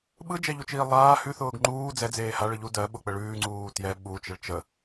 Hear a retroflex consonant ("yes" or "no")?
yes